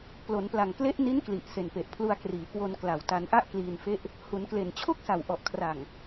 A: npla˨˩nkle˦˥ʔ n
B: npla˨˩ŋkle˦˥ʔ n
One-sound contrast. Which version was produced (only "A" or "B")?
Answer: B